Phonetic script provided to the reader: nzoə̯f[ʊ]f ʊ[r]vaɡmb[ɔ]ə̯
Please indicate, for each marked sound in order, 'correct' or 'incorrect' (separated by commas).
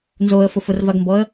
correct, correct, correct